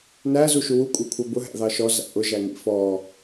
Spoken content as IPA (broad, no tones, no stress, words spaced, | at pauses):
næ zuʃuwu kʷʼɛkʷʰʌbʊ ɦæ̰ðɑʃɔ zæ̰ʔʊ ʒæŋḭfɔ